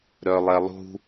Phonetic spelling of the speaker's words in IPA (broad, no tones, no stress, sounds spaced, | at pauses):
ɾ œ lˠ ɛ lˠ ṳ